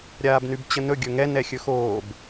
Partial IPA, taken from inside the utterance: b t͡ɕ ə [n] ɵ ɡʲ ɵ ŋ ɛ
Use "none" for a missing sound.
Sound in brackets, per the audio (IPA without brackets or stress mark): n